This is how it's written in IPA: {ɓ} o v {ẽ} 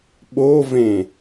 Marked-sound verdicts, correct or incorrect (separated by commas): correct, correct